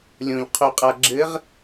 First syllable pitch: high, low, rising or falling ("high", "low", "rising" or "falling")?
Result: low